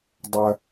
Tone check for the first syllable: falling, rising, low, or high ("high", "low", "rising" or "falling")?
low